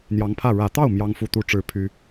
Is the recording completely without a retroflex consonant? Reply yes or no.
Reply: no